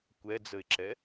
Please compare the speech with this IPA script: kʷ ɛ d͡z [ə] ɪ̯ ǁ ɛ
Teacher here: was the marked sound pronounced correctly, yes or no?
yes